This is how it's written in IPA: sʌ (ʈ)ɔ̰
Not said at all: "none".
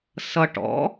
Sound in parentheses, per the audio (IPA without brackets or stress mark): ʈ